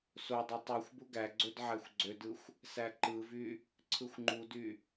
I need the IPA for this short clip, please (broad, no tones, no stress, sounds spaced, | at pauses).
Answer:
s o dˤ o tˤ u xʷ b u ɡ æ ɡ͡ǀ ø d ʕ æ xʷ ɡ͡ǀ ø d ɯ xʷ | s æ ǃ ɯ v y | ǀʰ ɯ xʷ ŋ͡ǃ u d y